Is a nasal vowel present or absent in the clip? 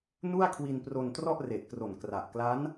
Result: absent